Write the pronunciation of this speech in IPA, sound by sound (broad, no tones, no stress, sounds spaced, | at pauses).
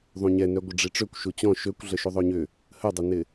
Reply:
ðˤ ũ ɲ ɛ n œ ɡʷ ə ɖ͡ʐ i ʈ͡ʂ ø kʷ ʃ u t͡ɕ ɔ̃ ʃ ø kʷ ɮ ə ʃ u ðˤ ø ɲ ʏ | h ə dˤ ə n ɪ